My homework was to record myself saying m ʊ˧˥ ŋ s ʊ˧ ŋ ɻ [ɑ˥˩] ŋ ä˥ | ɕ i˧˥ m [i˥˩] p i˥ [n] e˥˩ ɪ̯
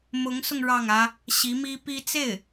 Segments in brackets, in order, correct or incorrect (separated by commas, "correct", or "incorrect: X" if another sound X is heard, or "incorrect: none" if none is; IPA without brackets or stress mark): correct, incorrect: i˥, incorrect: t͡s